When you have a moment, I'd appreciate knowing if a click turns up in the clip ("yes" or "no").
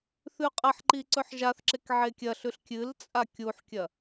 yes